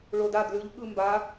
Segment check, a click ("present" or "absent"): absent